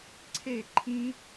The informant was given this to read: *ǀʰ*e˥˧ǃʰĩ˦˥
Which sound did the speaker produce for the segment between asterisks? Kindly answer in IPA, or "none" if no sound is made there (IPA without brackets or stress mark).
ǀʰ